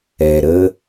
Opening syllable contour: low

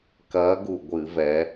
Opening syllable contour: rising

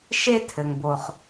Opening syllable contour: high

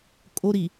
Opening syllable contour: high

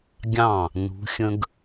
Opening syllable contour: falling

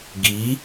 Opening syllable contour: rising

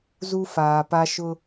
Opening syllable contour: high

